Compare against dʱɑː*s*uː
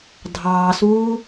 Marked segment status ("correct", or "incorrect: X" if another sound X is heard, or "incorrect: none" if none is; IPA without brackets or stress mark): correct